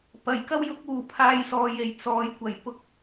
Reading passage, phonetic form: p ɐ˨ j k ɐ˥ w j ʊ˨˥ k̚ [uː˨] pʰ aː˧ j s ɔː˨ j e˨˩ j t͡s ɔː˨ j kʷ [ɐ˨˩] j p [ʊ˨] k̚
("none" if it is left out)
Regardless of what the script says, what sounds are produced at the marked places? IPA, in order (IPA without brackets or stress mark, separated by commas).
uː˨, ɐ˨˩, ʊ˨